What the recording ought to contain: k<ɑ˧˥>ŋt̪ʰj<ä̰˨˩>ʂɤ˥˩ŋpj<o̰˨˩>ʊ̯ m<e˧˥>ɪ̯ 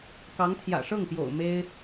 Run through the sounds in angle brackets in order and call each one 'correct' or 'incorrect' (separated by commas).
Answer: correct, correct, correct, incorrect